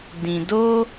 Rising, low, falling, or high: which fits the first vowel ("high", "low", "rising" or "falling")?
low